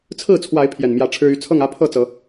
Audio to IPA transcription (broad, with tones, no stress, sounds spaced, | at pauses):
t͡sʰ ɹ̩˥˨ t͡sʰ w a˨˦ ɪ̯ pʰ j ɛ˨˩ n m j ä˨˦ ʈ͡ʂʰ ɻ̩˦ y˥˨ t͡sʰ ɤ˥˨ ŋ ä˦ pʰ ɤ˥˨ t͡s ɤ˨˦